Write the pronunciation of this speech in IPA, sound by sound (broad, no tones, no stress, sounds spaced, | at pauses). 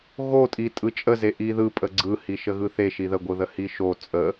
ɣ o tʼ i tʼ ɯ t͡ʃʼ ə z e ʔ i ð ɯ pʼ ə ɡ͡ǀ ɯ h i ʃ ə ɣ ɯ θ e ʃ i ð ə ɡʷ ɯ ð ə h i ʃ o t͡sʼ ə